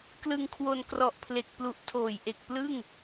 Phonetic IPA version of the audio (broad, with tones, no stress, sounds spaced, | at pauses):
k l ɯ˧ ŋ kʰ w o˧ n k r ɔ˨˩ ʔ pʰ l e˨˩ k̚ p l u˨˩ ʔ tʰ oː˨˩ j ʔ e˨˩ k̚ p l ɯ˥˩ ŋ